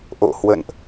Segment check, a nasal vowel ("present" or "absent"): absent